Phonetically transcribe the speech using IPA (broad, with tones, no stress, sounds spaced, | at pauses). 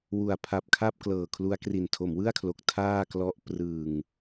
w u˨˩ a̯ pʰ a˨˩ p̚ kʰ a˥˩ p̚ k l ɤː˨˩ kʰ l u˦˥ a̯ k r i˨˩ n tʰ o˩˦ m w ɯ˥˩ a̯ kʰ l o˨˩ k̚ tʰ aː˥˩ k l ɔ˦˥ ʔ p r ɯ˨˩ ŋ